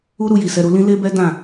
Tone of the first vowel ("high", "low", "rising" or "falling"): high